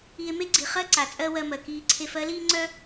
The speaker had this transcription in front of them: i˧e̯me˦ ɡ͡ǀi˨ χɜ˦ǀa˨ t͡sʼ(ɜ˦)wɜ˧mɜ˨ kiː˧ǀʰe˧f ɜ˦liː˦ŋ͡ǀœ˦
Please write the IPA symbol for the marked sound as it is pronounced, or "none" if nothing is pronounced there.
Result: ɜ˦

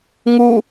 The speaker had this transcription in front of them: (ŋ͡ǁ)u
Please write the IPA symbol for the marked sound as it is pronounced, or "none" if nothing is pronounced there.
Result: ŋ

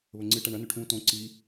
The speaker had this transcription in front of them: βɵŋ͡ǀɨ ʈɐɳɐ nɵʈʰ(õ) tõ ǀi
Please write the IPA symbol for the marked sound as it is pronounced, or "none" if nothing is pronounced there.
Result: ũ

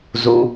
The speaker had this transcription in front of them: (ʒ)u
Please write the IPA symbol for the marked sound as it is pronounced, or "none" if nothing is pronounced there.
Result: z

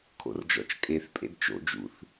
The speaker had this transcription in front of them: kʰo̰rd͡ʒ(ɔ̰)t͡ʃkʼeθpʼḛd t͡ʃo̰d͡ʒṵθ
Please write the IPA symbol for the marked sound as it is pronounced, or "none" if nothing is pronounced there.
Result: ɔ̰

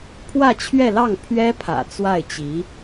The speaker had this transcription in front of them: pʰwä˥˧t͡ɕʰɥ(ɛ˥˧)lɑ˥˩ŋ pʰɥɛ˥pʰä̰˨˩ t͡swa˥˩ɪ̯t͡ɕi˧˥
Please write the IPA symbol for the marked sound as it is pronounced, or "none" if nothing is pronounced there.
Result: ɛ˥˧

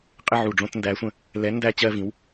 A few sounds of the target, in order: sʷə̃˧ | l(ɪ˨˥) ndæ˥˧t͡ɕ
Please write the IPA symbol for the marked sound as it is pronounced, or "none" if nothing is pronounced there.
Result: ɛ˨˥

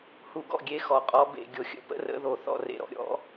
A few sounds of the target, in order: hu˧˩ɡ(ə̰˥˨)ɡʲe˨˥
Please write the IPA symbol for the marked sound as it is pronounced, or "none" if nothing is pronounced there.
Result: ɔ̰˥˨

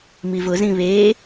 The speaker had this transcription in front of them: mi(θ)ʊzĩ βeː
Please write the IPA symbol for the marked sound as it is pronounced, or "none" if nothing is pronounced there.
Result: v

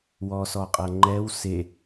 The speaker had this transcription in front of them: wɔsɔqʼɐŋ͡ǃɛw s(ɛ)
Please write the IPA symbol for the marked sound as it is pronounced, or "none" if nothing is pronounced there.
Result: e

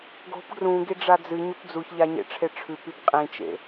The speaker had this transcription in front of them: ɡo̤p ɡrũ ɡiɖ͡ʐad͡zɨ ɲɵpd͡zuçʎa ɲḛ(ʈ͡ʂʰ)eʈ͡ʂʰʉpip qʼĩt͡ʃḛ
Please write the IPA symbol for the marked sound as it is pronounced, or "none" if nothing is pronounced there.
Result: ʈ͡ʂʰ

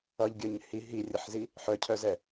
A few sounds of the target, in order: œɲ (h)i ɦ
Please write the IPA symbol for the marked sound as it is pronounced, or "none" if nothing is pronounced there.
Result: h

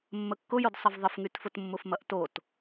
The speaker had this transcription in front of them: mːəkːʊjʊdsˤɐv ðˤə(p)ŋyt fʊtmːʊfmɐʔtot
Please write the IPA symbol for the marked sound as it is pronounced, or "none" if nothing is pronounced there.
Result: f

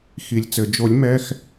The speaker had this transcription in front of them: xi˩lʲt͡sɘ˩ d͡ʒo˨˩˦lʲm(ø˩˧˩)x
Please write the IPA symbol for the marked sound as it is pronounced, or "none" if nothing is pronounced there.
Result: ɛ˩˧˩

